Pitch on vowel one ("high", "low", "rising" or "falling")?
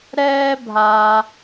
high